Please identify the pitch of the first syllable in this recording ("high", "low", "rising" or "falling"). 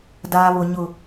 low